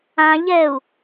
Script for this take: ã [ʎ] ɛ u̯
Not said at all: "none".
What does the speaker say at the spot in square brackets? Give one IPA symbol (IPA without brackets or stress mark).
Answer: ʎ